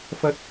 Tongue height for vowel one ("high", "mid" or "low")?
low